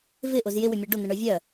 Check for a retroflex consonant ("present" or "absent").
present